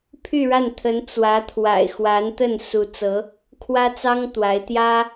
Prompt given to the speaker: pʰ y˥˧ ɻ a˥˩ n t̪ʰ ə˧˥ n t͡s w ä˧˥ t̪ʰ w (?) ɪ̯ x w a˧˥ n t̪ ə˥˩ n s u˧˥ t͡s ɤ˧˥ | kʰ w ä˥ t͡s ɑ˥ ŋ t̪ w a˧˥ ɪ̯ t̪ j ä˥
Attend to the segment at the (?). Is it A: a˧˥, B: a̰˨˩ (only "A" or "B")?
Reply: B